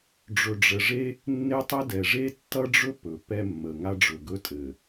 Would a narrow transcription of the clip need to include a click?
no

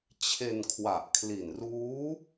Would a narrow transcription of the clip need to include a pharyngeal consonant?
no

